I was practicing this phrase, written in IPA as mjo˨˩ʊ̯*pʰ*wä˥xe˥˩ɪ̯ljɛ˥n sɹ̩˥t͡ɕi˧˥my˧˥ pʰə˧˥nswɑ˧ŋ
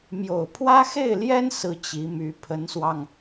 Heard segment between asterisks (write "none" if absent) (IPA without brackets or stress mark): pʰ